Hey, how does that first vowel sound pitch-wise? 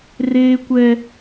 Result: high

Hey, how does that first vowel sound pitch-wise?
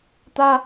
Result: high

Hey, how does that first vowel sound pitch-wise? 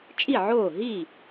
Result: falling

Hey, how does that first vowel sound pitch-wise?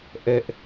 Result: high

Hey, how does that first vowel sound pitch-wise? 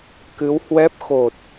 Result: rising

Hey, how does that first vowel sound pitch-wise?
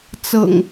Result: low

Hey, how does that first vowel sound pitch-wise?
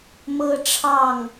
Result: high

